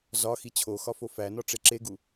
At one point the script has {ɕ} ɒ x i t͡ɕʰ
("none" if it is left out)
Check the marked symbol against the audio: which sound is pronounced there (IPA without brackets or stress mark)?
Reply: z